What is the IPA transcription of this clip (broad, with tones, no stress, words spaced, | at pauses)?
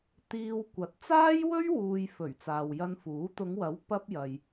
t̪iː˧wkʷɐ˨˥t̚ t͡saː˥jwɵ˥ɥwuː˨j fɵ˨˩ɥ t͡saː˨wjɐ˧nfuː˨˥ t̪ʊ˨˧ŋwɐ˨˥w pɐ˥p̚jɐ˨j